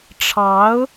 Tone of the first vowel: rising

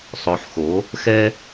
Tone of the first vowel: low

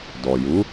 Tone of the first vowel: low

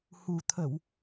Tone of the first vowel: low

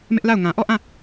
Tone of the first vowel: high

